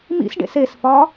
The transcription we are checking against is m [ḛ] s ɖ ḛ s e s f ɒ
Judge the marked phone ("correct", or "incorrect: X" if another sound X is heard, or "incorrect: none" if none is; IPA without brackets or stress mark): incorrect: ḭ